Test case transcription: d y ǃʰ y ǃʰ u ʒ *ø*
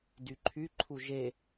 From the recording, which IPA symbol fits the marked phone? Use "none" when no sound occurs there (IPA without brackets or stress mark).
e